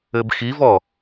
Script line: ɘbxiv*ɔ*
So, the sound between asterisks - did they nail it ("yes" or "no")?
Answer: yes